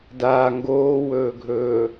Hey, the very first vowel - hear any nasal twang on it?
no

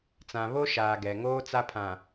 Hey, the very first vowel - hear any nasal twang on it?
yes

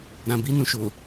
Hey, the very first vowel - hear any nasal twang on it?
yes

